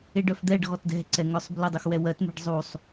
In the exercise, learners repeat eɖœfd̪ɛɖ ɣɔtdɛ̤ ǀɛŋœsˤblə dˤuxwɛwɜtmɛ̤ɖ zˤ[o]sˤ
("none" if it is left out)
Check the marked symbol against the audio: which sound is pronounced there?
u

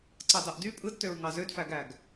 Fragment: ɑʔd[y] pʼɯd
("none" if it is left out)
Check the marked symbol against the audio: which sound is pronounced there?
y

